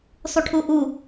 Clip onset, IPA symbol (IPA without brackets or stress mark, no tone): sˤ